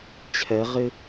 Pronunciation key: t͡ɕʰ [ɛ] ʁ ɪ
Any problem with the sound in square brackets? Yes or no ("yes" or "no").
no